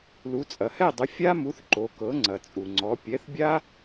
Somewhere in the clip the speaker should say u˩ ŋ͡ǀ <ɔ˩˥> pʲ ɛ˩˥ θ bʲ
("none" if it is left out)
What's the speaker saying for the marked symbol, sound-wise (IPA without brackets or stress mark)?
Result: ɔ˩˥